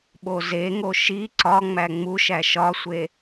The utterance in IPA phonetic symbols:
ɓozeŋo ʃi ǀɒŋ͡mæ ŋ͡muʃæ ʃɒsʷe

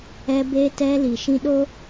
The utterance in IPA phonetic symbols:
ɛ˦ beː˦tɛ˦li˨ ʃĩ˦ɗo˦

